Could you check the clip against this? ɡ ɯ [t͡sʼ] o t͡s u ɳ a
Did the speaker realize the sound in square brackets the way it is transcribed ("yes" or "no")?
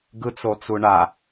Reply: no